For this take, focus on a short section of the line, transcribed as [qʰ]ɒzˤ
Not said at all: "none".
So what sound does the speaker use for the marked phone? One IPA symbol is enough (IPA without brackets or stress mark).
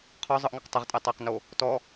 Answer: qʰ